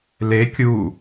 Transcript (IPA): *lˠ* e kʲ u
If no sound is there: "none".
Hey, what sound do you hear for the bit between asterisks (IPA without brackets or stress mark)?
l